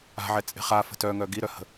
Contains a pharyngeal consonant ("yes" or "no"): yes